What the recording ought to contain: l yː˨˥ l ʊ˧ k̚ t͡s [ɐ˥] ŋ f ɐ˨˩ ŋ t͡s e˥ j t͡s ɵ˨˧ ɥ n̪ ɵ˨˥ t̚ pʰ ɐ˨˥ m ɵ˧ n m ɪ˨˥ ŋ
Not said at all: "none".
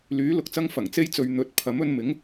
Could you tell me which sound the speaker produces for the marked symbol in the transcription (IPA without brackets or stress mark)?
ɐ˥